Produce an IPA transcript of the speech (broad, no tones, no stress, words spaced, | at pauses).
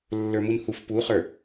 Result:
lːə˞munhuf puχə˞